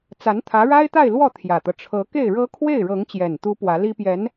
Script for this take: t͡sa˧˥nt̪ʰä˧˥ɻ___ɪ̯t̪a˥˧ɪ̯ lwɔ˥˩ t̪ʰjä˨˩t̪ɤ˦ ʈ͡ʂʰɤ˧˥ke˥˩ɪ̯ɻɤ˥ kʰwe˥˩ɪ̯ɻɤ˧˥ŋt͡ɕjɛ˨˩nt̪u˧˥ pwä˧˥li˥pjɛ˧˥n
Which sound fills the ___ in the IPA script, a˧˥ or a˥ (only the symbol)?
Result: a˥